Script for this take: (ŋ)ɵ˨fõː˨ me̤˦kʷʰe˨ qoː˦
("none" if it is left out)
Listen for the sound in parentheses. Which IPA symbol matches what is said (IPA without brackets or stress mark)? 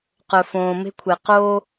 q